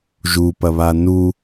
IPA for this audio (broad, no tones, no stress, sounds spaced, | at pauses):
ʒ u p ɐ β a n u